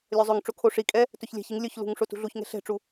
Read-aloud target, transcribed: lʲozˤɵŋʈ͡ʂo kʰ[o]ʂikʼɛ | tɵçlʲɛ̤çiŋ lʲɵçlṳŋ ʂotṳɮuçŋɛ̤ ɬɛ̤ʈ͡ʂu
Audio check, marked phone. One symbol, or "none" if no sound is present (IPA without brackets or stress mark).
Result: o